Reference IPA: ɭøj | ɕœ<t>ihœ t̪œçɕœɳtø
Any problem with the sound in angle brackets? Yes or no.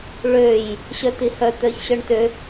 no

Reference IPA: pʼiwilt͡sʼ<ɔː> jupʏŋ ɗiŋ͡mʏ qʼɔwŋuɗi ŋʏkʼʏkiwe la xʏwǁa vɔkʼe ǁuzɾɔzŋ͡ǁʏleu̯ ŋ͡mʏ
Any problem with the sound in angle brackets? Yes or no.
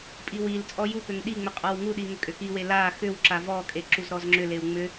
yes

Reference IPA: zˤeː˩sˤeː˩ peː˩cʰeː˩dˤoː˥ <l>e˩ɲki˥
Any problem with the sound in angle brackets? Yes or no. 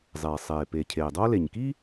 no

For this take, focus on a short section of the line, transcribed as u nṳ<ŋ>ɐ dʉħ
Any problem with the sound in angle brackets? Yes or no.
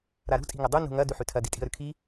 no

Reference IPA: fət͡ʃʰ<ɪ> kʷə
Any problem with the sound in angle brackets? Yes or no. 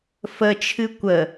yes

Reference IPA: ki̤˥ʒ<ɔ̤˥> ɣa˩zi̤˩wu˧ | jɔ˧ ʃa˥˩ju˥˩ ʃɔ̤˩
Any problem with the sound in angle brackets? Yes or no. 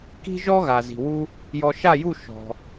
yes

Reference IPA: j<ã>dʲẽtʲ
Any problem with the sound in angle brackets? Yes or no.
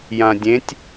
no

